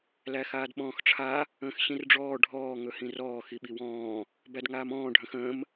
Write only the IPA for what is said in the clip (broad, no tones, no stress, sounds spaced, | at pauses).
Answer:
l æ x aː d ɓ ɔ̃ː x ʈ͡ʂʰ a | ə̃ː x ɕ ĩ r ɖ͡ʐ ɔː ɖʱ ɔː ŋ ɵ h ĩ r ɔː x i ɓ i w ɔ̃ː | b æ d ŋ aː m ɔ̃ː ɖʱ ə̃ x ə̃ː m